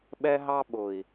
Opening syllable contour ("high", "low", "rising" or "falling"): high